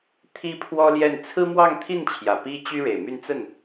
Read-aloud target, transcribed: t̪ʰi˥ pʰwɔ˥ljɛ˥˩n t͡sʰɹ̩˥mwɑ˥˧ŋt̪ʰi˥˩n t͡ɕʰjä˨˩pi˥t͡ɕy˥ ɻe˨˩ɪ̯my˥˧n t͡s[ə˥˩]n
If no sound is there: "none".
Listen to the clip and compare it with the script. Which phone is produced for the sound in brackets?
ə˥˩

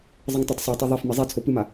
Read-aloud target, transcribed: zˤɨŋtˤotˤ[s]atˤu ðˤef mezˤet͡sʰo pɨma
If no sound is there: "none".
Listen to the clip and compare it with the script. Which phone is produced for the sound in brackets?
sˤ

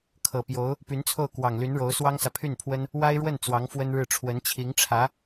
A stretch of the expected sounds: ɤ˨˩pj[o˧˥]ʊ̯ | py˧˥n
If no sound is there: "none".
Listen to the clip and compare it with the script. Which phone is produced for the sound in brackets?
o˧˥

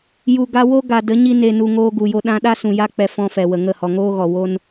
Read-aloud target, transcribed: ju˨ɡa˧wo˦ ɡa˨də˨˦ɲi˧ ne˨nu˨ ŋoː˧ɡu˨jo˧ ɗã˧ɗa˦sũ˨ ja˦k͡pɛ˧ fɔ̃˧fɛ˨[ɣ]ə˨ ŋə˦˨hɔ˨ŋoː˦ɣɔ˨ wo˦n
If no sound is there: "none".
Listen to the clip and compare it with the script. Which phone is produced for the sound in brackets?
w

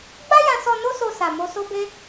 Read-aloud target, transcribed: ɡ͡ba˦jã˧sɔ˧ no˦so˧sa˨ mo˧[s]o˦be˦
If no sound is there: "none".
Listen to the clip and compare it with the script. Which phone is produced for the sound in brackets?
s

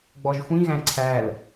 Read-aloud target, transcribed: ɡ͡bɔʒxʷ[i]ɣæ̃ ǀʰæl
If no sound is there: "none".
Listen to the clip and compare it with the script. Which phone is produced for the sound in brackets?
ĩ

